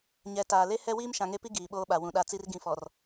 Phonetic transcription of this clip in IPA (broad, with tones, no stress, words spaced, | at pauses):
ɲɛ˨˦taː˨le˦ hɛ˦wiː˦m ʃã˨ŋe˦pi˦ ɡiː˨ɓoː˦ɓa˨ wũ˨ɗa˦˨t͡si˦r ɡĩ˨fɔ˨r